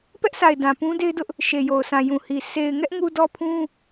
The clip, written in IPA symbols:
p ɛ˦ ʔ s a˨ ɪ̯ d ã˨ p ũ˦ d e˦ ɪ̯ d ʊ˦ ʔ | ʃ e˨ j o˨ ʊ̯ sʰ ã˨ j ũ˨ h i˨ s e˨ ɪ̯ ŋ ɛ˦ ʔ ŋ u˦ d ɔ˦ pʰ ũ˦

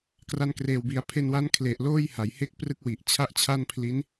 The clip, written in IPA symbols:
k r a˧ n k r eː˨˩ w b i˩˦ a̯ pʰ e˧ n w a˦˥ n kʰ l e˨˩ ʔ l oː˥˩ j h a˩˦ j h e˥˩ k̚ p r ɯ˥˩ k̚ w i˨˩ ʔ t͡ɕʰ a˥˩ ʔ t͡ɕʰ a˥˩ n pʰ l i˦˥ n

